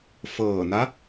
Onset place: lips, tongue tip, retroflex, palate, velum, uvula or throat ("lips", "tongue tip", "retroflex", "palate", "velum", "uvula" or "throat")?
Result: lips